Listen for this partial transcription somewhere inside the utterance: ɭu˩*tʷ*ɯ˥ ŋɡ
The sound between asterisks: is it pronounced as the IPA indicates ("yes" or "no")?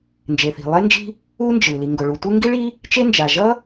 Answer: yes